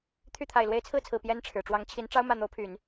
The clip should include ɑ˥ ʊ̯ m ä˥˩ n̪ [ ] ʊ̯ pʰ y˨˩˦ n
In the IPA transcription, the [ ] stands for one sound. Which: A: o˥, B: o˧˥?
B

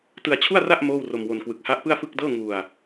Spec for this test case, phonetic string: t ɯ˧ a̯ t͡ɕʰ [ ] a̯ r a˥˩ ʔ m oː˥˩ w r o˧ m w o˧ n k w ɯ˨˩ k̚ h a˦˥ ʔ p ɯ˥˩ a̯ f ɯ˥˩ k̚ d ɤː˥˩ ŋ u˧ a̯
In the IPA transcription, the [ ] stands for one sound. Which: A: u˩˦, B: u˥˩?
B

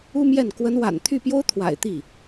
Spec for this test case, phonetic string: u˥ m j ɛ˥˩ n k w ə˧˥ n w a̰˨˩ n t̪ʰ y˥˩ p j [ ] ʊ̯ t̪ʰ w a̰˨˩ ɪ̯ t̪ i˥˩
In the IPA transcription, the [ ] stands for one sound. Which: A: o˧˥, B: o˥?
B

